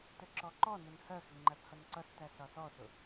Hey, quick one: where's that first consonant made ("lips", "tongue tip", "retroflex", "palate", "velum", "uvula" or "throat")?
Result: tongue tip